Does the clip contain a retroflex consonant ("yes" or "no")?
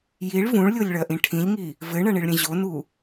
yes